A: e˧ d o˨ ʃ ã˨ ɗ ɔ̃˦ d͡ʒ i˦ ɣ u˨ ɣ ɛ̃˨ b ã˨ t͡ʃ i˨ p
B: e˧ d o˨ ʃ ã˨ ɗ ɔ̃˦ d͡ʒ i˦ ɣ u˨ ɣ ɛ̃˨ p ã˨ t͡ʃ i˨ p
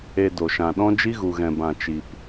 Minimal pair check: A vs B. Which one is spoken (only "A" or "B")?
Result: A